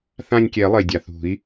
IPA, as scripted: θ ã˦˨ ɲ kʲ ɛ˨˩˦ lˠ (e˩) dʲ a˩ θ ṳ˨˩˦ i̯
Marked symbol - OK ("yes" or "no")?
yes